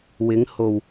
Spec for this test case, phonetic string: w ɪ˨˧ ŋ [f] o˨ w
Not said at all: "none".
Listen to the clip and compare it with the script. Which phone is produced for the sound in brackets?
h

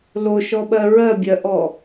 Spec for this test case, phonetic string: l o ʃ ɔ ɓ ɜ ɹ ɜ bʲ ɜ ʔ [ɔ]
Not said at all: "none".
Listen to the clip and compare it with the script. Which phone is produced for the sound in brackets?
ɔ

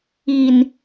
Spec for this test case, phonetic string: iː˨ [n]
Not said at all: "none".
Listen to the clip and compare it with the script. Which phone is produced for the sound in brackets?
n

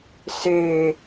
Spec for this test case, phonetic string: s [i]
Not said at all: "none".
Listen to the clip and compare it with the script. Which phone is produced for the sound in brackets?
e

